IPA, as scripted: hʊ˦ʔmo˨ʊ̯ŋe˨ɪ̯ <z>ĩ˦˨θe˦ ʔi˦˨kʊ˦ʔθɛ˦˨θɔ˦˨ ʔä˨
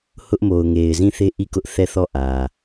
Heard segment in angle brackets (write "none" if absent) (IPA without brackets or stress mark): z